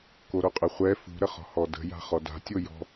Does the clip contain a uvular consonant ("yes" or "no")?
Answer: yes